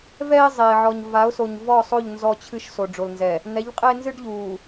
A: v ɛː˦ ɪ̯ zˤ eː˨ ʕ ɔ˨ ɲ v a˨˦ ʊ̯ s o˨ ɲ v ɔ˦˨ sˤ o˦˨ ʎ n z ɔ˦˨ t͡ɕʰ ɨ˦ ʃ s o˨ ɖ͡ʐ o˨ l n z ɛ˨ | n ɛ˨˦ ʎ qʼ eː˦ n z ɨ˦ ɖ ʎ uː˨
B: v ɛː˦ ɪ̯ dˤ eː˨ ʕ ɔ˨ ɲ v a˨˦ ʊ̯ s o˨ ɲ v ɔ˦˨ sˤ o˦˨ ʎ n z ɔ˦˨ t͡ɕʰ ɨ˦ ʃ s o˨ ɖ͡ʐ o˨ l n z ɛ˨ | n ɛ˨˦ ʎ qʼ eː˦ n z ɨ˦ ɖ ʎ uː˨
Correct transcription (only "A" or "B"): A